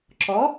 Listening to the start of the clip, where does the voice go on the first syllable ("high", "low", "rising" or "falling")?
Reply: rising